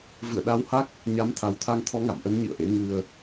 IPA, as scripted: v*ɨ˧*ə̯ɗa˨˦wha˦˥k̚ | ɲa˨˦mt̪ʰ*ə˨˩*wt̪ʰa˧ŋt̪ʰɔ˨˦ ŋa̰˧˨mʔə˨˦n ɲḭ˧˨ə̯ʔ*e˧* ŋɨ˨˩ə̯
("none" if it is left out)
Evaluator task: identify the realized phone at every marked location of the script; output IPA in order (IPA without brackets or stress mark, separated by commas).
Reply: ɨ̰˧˨, a˨˩, ḛ˧˥